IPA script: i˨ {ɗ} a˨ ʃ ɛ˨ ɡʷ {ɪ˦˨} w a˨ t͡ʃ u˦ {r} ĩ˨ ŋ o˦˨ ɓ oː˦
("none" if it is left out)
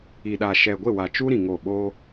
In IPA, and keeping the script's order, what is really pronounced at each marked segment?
ɗ, ɪ˦˨, ɾ

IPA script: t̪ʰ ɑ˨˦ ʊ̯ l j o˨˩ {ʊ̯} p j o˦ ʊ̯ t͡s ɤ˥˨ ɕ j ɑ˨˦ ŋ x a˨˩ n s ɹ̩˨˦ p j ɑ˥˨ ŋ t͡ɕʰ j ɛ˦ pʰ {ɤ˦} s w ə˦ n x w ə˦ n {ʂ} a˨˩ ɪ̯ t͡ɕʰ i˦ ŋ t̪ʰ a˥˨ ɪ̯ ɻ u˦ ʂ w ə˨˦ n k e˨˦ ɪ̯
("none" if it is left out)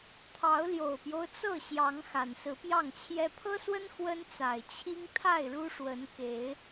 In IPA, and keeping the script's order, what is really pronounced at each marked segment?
ʊ̯, ɤ˦, t͡s

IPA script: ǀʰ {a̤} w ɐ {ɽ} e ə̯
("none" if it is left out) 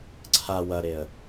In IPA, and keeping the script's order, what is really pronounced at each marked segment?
a, ɾ

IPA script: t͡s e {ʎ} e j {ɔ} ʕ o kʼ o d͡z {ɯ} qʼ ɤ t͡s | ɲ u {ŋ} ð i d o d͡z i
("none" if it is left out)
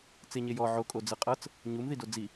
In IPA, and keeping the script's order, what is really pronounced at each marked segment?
ɲ, ɔ, ɯ, m

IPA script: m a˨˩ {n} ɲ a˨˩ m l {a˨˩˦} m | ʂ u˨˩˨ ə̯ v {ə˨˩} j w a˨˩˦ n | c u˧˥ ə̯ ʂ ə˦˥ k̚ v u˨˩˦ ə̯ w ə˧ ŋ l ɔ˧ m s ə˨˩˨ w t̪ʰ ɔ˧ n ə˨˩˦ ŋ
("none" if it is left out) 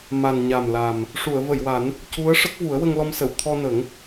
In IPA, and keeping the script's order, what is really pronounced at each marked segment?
n, a˨˩, ə˨˩˨

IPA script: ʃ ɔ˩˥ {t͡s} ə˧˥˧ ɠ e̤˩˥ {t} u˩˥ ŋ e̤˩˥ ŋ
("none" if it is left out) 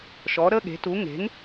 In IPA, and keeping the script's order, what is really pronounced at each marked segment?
ɾ, t

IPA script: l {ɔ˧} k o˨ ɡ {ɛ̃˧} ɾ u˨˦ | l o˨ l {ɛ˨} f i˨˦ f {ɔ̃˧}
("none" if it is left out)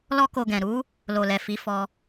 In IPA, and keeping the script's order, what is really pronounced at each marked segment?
ɔ˧, ɛ̃˨, ɛ˨, ɔ˧

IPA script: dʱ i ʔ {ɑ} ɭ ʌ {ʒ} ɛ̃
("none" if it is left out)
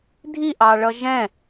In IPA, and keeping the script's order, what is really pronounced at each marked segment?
ɑ, ʒ

